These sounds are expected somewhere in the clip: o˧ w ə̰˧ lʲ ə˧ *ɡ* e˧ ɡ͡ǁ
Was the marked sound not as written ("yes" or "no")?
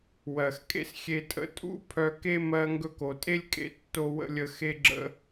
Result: yes